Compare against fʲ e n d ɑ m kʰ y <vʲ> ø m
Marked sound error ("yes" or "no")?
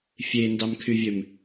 no